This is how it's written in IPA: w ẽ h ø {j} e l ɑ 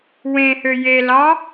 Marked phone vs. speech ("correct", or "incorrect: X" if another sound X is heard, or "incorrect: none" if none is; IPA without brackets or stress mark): correct